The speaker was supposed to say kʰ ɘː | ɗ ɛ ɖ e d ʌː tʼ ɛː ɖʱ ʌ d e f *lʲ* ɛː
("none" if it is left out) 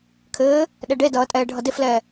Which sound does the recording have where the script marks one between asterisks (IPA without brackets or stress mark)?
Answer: l